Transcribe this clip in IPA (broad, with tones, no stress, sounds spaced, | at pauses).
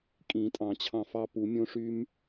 kʼ ĩ˨˩˦ tʼ ɑ̃˨˩˦ t͡ɕʰ ɑ̃˧˩ f ɑ˦˥ p u˨˩˦ mʲ õ˦˥ ʂ y˦˥ m